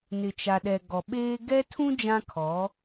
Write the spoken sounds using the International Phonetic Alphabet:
nɪ˨t͡ʃa˨ɗɛ˨ ɡɔ˨ɓeː˦ ɡɛ˦tʰũ˦ d͡ʒã˦kʰɔ˨˦

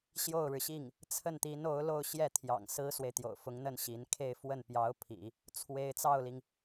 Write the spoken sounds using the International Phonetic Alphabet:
ɕjo˥˩ʊ̯ɻɻ̩˩ɕi˥˩ŋ | t͡sʰə˥˩nt̪i˧˥no˧˥ʊ̯ lo˥˧ʊ̯ɕjɛ˥˩ t̪ʰjɑ̰˨˩ŋ sɹ̩˥swe˨ɪ̯t̪jo̰˨˩ʊ̯ fʊ˧˥ŋn̪ə˥˩n ɕi˧˥n kʰe˥˧ɪ̯ fwə˥˩npjɑ˧˥ʊ̯ pʰḭ˨˩˦ | t͡sʰwe˥ɪ̯ t͡sɑ˥˩ʊ̯li˩ŋ

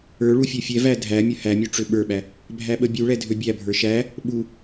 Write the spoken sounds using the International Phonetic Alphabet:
ə˞ ɭufʲøfʲɛvæ dʱæmʲə hæmʲu ʈ͡ʂøɓə˞ɓæ | bʱæɓəbʲuɭɛ dʱøbʲæbʱə˞ ʃæ | ɓu

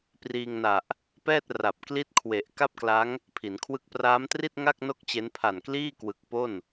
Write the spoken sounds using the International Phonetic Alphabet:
priː˧ŋna˨˩ʔ | pɛː˥˩t̚ ra˨˩p̚ kli˥˩t̚kʰwe˨˩ʔ ka˥˩p̚kla˦˥ŋ | pʰi˩˦nkʰwɯ˥˩k̚ praː˦˥mtri˥˩t̚ŋa˥˩k̚ no˥˩k̚t͡ɕe˦˥n pʰa˨˩nkliː˥˩kwɯ˨˩k̚ po˥˩n

